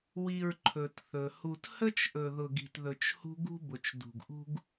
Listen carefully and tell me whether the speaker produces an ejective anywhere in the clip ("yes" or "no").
no